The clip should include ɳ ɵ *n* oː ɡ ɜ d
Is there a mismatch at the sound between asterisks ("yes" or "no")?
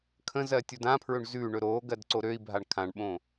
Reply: yes